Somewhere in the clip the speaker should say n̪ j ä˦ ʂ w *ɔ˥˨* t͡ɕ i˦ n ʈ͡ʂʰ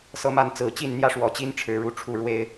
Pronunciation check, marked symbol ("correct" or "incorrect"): incorrect